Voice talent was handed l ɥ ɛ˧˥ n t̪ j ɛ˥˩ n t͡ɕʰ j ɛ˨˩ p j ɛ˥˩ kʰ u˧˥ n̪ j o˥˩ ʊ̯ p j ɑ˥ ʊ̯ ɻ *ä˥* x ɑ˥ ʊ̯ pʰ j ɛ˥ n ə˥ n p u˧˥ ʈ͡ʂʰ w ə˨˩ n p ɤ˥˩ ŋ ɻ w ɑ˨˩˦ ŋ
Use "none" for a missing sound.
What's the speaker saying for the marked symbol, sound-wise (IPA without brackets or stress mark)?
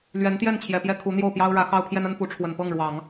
ä˧˥